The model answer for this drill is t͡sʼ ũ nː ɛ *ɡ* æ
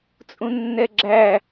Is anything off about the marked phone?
yes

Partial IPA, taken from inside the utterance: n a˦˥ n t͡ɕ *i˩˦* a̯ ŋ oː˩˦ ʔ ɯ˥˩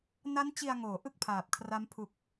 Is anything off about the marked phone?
yes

